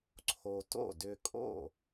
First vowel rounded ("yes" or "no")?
yes